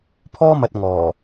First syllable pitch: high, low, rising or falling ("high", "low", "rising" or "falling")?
high